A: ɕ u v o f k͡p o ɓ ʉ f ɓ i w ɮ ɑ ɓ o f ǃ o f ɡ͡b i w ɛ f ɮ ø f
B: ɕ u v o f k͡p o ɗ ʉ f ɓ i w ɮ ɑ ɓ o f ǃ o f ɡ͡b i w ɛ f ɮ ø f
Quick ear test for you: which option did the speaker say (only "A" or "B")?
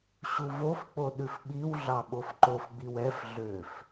B